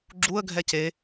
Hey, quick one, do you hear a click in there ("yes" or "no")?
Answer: yes